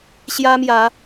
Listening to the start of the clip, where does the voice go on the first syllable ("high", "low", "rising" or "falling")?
high